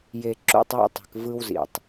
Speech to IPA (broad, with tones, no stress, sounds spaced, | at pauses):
j e˨ ǁ ṵ˦˨ tˤ w ḛ˦ tˤ e̤˨ k v ɯ˦ w z ḭ˨ tˤ